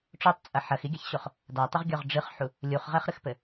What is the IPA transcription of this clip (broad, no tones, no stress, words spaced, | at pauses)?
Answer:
ʈ͡ʂotˤt͡sʼɐ ħɐxiɡʲaçɕoχ | datˤɘʁɡʲɔʁ ɖ͡ʐɨχħu | lʲuχʁɛχɾɨxpɘ